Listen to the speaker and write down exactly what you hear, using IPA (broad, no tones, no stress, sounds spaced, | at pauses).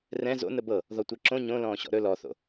r ɛ̃ z o̰ n ə b ɤ | ð ɔ tʷ ɛ ǁ õ ɲ õ l ɔ̃ː ɕ ɔ̰ ɾ ɵ l ɔ θ o̰